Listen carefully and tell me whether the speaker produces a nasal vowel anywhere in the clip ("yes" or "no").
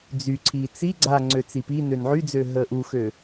no